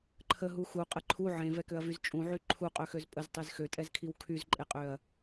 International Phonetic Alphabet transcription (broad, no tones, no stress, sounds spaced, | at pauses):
ǃʰ ə ɦ u x u qʼ ə ǃʰ u ʕ ẽ v ɛ k ø ɐ̯ v y z t͡ʃʼ ũ ʕ y ǃʰ u qʼ ø x ø z pʼ ə z tˤ e z x ø tʼ ɛ z kʰ i w kʰ y z ǃʼ e qʼ ø ɐ̯